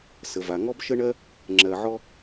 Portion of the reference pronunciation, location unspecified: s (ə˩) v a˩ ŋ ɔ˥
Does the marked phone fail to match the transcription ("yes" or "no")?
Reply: no